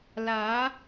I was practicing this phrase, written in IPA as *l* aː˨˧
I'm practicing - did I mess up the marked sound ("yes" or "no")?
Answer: no